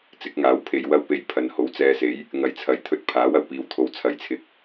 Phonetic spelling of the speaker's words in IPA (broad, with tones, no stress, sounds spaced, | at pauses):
t͡s ɪ˨˥ k̚ ŋ aː˨˥ w pʰ e˨ j w ɐ˥ w p e˧ j pʰ ɐ˨ n h o˨˥ w t͡s ɛː˧ s e˨˥ j | ŋ ɐ˨ j t͡sʰ ɐ˨˥ j t̪ʰ ɵ˧ t̚ pʰ aː˨˥ w ɐ˨˩ w p iː˨˧ w t̪ʰ o˨˧ w t͡sʰ ɐ˨ j t͡sʰ ɪ˨˥ k̚